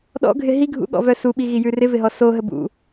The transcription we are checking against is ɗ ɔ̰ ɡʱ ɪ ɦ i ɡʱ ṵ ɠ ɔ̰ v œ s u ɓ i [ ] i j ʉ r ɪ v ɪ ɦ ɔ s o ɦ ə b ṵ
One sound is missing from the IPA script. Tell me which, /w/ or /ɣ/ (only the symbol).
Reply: ɣ